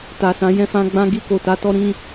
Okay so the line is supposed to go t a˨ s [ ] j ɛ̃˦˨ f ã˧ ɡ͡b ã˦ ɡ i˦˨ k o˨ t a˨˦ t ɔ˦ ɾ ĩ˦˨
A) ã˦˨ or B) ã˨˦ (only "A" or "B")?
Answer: B